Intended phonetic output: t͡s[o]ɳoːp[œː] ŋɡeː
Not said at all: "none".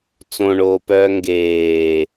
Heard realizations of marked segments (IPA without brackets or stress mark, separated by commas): õ, œː